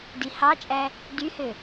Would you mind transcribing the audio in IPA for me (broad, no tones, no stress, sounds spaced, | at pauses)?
d i h ɑ t͡ʃʼ æ | d y h ø